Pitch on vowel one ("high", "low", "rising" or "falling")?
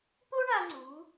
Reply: high